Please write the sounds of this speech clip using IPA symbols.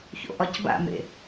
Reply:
ç o̰ ʔ ɒ c b a̰ m ḛ

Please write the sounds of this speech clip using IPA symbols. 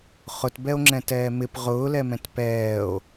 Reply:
χ ʊ t b ɛ o̯ ŋ͡ǁ ɛ̃ t ɛː m ɪ p ʁ ʊː l ɛ m ɛ̃ t p ɛː o̯

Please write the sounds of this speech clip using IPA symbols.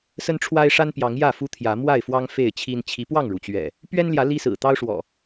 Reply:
s ə˦ n ʈ͡ʂʰ w a˦ ɪ̯ ʂ a˦ n p j ɑ˨˦ ŋ j ä˥˨ f u˦ t̪ʰ j ä˨˦ m w a˥˨ ɪ̯ f w ɑ˦ ŋ f e˥˨ ɪ̯ t͡ɕʰ i˦ n t͡ɕʰ i˨˦ p w ɑ˥˨ ŋ ɻ u˩ t͡ɕ ɥ ɛ̰˨˩ | p ɥ ɛ˦ n l j ä˨˦ l i˦ s ɹ̩˨˩ t̪ ɑ˦ ʊ̯ ʂ w ɔ̰˨˩

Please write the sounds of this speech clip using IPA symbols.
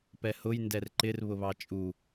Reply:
p ɛ h ʊ j n d ɛ r ǃ ɪ r β ʊ β ɑ t͡ʃʼ u

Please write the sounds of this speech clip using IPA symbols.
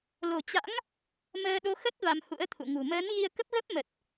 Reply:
l o̤˨˩ t͡ɕ a̰˧˥ ŋ | m əː˧ ɗ o˧ x ə˦˥ t̚ v a˧ m h ṵ˧˥ ə̯ t̪ʰ ṵ˧˨ ŋ ṳ˨˩ m əː˨˦ n ɣ i˧ ə̯ k ə˦˥ p̚ ɣ ə˦˥ p̚ m ə˨˩ t̚

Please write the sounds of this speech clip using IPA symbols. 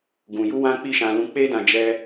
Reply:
ɡ ũ˧ j u˦ w ã˦ k͡p i˦˨ ʃ ã˧ l ũ˧ k͡p e˦ d ã˧ d͡ʒ ɛ˦

